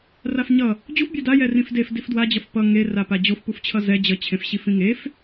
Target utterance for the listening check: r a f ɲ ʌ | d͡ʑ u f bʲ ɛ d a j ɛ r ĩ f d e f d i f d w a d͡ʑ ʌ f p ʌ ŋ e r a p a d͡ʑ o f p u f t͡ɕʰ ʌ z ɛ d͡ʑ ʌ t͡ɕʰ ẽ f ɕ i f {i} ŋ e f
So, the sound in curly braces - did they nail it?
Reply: no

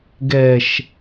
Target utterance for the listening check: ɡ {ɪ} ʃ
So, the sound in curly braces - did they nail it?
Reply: no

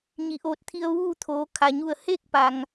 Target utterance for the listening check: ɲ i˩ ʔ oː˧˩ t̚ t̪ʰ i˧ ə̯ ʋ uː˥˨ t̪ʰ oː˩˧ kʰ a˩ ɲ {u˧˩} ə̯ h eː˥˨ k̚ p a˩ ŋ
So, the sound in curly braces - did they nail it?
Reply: yes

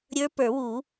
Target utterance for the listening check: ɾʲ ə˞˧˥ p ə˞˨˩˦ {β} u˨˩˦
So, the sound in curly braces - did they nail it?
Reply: no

